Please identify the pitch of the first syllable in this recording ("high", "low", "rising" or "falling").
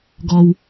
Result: low